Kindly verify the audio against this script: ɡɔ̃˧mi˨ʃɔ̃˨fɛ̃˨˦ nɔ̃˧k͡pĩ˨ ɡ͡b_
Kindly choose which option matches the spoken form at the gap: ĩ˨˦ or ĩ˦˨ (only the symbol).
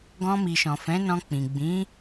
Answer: ĩ˨˦